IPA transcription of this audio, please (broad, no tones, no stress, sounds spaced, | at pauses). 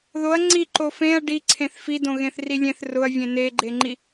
ð o ɐ̯ ŋ͡ǀ i ǃ o f ẽ ɐ̯ ɖ i ǀʰ ẽ θ f i d õ ɣ ẽ θ r i lʲ ẽ θ r ʊ ɐ̯ vʲ ẽ n e ɡ͡ǃ e ŋ͡ǃ i